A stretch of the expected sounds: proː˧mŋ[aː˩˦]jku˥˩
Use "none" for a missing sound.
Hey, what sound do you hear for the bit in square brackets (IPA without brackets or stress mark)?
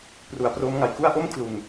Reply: a˩˦